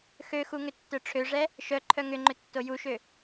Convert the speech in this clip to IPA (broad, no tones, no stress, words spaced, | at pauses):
xøxu ŋʏtːœʈ͡ʂʰøʐɛ | ʃœ ǃʰœŋʏŋ͡ǃʏ tːojuʃø